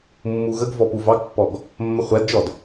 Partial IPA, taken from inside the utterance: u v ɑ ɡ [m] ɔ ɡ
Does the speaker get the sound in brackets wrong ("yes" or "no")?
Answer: yes